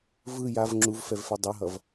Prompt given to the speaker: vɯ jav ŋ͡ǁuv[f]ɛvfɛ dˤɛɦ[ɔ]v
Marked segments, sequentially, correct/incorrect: correct, incorrect

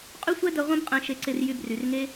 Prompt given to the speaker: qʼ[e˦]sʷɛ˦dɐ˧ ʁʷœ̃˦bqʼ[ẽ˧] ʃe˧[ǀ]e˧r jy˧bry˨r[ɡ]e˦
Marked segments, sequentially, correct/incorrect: incorrect, correct, correct, incorrect

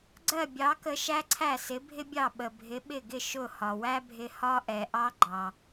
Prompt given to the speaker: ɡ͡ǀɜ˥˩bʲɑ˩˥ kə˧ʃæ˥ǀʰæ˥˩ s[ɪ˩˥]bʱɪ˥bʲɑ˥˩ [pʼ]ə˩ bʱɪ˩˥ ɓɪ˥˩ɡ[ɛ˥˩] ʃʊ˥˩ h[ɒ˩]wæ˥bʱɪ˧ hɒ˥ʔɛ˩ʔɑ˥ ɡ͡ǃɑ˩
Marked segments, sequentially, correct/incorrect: correct, incorrect, incorrect, correct

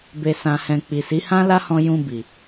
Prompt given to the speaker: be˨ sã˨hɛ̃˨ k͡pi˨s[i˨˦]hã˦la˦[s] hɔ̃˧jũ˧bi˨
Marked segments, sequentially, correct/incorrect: correct, incorrect

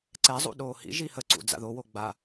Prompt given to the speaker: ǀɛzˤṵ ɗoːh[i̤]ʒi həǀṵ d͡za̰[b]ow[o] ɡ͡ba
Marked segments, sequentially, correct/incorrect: incorrect, incorrect, correct

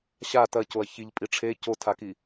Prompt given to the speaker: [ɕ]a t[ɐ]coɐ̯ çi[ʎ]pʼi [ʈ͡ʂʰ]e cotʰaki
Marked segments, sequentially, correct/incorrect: correct, correct, correct, correct

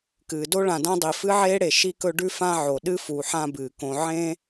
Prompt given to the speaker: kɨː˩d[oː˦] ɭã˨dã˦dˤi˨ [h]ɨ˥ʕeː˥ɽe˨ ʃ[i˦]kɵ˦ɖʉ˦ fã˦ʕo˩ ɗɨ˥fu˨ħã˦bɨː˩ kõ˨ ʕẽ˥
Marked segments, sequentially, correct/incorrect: incorrect, incorrect, correct

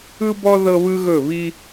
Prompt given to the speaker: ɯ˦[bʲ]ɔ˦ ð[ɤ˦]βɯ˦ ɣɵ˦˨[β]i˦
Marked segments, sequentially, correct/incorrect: incorrect, correct, correct

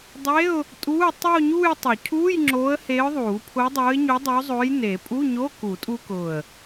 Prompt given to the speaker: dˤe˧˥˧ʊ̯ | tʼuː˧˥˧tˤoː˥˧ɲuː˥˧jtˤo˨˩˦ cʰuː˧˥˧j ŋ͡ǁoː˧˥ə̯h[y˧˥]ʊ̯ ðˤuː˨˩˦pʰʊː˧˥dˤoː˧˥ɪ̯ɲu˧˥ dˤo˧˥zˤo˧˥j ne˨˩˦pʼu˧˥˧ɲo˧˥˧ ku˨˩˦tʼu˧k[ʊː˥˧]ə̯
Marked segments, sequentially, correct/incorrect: incorrect, incorrect

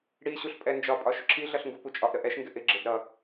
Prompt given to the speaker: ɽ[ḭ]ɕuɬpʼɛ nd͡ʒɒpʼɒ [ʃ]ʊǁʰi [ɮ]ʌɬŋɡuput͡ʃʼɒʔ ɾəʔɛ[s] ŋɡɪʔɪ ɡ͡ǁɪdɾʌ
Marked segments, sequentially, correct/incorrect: incorrect, correct, correct, incorrect

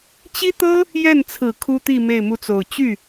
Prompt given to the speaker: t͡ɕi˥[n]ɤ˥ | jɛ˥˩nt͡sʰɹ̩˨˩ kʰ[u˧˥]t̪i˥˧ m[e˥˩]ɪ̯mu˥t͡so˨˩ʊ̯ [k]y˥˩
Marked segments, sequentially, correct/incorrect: incorrect, incorrect, correct, incorrect

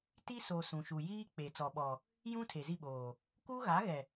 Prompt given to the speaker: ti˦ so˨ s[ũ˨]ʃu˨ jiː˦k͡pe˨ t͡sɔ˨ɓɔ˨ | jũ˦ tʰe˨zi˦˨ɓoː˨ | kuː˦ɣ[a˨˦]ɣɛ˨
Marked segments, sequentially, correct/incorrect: correct, correct

